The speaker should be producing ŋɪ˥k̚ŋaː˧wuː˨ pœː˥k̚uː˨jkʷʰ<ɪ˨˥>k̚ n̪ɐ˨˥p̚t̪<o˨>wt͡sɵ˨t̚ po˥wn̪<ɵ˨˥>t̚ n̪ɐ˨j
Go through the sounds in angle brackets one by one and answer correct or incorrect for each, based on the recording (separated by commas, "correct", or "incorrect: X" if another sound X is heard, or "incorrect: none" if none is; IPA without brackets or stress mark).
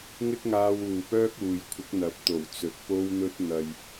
correct, incorrect: o˨˩, incorrect: ɵ˥